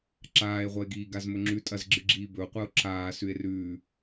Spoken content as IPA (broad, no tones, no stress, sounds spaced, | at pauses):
ǁ aː e̯ ʁʷ ɐ e̯ ɡ iː ɡ a z m ɵ ŋ͡ǁ ʉ tʼ ɐ z ɡ͡ǁ ɨ ɡ͡ǁ iː b ɵ o̯ qʷ a o̯ ǁ aː s ʉ e̯ r ʉː